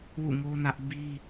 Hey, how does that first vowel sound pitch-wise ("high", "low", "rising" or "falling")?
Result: falling